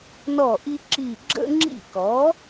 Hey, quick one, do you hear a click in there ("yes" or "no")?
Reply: yes